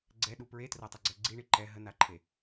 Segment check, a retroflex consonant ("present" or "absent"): present